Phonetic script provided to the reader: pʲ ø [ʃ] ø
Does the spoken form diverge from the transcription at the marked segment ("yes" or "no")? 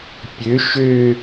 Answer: no